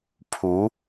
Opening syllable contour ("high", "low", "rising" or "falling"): rising